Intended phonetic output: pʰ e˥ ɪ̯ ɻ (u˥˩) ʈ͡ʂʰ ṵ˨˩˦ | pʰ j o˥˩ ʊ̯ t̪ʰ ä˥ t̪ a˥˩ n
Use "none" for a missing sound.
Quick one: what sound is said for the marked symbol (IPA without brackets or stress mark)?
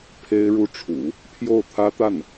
u˥˩